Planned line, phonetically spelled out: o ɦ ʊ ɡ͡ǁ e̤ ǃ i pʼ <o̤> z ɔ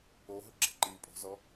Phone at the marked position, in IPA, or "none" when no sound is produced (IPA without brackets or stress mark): o̤